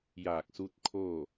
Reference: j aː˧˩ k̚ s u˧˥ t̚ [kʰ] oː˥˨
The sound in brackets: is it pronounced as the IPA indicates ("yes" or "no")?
yes